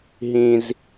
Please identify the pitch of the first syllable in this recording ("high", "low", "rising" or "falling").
high